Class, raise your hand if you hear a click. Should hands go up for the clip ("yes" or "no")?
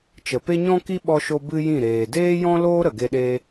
no